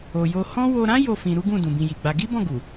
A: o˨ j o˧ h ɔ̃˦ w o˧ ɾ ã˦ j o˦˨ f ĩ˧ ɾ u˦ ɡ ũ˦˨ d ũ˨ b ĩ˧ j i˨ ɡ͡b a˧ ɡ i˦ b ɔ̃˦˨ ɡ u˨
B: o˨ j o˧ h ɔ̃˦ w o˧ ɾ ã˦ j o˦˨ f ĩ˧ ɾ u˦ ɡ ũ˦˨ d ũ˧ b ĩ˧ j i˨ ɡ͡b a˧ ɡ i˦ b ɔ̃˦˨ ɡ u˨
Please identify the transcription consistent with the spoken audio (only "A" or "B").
A